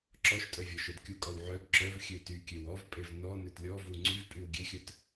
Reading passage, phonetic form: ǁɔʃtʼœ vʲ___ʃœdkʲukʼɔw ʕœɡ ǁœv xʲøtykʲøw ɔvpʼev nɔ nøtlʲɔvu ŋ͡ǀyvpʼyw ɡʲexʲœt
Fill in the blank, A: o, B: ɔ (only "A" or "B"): B